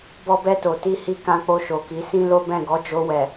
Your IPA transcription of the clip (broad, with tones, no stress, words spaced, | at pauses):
bɔ˧bɛ˧to˨ ti˧hi˧ kã˧k͡po˧ ʃo˨ki˨˦sĩ˦ lo˦bɛ̃˦˨ ɡɔ˨˦d͡ʒo˧wɛ˨